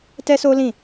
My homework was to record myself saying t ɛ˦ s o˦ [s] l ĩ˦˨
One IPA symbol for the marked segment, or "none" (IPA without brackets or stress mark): none